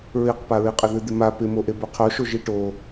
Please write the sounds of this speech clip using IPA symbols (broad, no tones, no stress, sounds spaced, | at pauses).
ɹ i q p a ɹ i qʼ ɪ ð ɨ d̪ ɪ m a p ɪ m o ʔ e b o qʰ o ʃ o ʒ i ʈ o